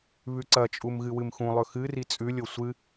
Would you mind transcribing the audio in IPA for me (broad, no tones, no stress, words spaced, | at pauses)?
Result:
βʉǀɐt͡ʃʼum ɣɨwɨmxũlˠɵ xɨri t͡sʼʉlʲo sʷɨ